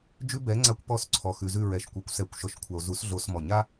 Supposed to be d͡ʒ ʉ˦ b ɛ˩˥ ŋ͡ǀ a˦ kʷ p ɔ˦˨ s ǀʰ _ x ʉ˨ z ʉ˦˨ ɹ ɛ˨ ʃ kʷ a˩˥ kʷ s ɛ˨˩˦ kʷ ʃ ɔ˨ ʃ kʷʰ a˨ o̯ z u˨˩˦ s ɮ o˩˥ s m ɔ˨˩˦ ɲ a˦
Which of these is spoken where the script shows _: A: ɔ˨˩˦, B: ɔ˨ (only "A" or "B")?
B